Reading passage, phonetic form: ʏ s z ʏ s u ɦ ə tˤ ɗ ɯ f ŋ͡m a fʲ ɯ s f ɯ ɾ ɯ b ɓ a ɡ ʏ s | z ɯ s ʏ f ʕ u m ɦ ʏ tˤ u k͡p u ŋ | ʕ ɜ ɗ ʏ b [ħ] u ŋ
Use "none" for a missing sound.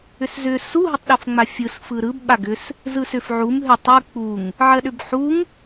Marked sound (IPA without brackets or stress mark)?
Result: ħ